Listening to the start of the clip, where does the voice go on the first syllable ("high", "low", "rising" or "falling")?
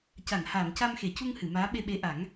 low